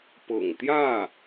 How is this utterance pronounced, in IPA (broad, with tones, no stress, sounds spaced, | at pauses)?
p ɤ̰˨˩ ŋ t̪ j ä˥˩